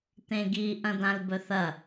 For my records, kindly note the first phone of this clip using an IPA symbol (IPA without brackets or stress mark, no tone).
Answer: t̪